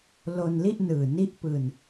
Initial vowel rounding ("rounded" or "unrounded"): rounded